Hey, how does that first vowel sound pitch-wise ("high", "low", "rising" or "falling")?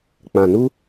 low